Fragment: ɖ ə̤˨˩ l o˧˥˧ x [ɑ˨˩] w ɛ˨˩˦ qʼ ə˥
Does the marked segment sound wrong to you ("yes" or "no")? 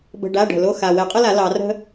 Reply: yes